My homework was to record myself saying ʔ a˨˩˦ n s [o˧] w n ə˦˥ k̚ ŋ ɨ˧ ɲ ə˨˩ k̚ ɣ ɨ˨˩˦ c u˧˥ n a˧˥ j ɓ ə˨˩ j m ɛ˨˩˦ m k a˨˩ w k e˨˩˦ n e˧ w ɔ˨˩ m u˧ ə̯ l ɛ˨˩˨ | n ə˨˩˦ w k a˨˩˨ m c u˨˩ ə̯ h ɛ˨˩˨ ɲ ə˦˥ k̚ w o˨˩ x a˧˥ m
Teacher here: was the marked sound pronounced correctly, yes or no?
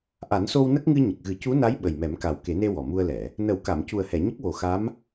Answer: yes